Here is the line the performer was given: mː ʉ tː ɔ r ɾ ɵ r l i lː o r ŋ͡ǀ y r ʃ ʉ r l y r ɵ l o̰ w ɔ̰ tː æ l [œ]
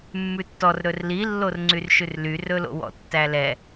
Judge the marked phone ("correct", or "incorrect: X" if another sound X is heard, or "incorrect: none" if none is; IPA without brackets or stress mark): incorrect: ɛ